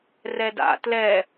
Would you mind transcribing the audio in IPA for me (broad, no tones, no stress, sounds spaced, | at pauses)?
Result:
r ɛ d a̰ t l ɛ